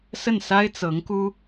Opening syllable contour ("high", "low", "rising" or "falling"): falling